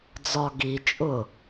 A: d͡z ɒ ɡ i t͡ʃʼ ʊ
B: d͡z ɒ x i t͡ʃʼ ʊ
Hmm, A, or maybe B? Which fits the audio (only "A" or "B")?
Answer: A